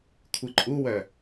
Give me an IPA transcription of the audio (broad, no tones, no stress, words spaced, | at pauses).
kʷʰɨǃʼuwœ